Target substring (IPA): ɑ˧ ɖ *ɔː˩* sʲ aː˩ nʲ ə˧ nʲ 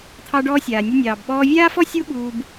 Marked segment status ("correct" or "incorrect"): incorrect